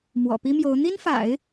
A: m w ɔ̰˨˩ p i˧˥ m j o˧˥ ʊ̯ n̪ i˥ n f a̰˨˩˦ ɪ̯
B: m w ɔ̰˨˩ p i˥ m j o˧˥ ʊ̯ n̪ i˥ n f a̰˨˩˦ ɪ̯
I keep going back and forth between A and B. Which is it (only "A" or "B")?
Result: B